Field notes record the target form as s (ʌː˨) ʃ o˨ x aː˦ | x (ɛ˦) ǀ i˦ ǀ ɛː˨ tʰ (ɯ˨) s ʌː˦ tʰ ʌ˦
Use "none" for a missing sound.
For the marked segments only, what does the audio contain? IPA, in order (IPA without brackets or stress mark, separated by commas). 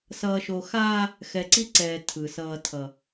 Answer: ʌː˨, ɛ˨, ɯ˨